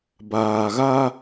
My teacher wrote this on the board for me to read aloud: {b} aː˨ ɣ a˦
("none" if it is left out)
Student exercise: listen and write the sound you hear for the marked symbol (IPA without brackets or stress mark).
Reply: b